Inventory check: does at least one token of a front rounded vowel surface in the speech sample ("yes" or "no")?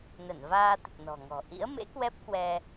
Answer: no